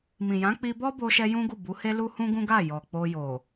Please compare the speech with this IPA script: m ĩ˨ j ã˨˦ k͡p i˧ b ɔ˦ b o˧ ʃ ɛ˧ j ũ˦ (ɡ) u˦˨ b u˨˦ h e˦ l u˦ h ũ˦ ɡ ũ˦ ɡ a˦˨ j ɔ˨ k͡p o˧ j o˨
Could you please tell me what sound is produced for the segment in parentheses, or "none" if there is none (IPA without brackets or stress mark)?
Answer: ɡ